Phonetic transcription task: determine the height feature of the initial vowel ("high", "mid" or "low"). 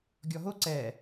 mid